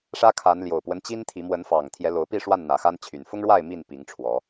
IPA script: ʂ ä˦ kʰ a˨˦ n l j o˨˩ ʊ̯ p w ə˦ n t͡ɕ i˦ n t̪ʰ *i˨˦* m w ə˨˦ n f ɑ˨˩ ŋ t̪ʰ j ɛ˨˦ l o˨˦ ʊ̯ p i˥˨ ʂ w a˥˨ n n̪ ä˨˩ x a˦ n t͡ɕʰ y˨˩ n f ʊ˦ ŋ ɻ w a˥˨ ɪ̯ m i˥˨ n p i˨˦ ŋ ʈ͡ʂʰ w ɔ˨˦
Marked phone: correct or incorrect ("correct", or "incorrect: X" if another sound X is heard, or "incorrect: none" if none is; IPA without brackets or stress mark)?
correct